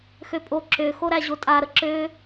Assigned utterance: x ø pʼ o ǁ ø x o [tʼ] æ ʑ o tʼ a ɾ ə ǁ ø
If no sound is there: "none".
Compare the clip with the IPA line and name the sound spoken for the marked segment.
ɾ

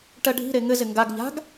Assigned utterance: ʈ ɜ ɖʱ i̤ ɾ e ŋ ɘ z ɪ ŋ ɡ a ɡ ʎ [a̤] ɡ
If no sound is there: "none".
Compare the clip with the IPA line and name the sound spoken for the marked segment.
a̤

